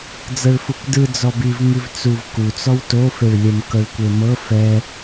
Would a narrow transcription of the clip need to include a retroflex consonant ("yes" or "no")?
yes